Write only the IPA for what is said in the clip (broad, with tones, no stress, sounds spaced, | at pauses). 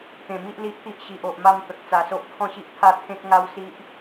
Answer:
t̪ ẽ˨˩ m i˦ ʔ l i˦ ʔ t̪ i˦ ʔ ɕ i˨ ʔ o˨ ʔ m a˧ m t̪ ə˨ k̚ t͡s a˧ s o˦ ʔ kʰ ɔ̃˥˧ ɕ i˦ ʔ t̪ʰ a˥˧ t̪ʰ ẽ˦ k̚ ŋ a˦ w s i˦ ʔ